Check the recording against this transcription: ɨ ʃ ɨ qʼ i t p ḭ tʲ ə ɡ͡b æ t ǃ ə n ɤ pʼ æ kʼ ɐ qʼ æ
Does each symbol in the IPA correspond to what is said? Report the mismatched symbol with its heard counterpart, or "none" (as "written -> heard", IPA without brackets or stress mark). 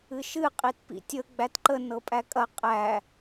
none